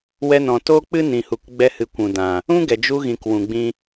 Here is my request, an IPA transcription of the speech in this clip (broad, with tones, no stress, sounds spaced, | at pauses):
w ɛ˧ n ɔ̃˨ t o˦ k͡p ɨ˦ n ĩ˨ h u˨ k ɡ͡b ɛ˧ h ɨ˨ kʷ ũ˨ d ã˨ | ũ˦ ɡ ɛ˨ d͡ʒ u˧ ɣ ĩ˨ k w ũ˨ ɡ͡b ĩ˧